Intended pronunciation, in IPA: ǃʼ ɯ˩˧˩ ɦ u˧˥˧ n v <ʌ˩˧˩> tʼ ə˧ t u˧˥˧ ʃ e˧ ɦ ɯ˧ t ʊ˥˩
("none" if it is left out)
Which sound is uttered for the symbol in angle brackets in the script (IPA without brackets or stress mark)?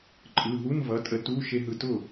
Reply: ʌ˩˧˩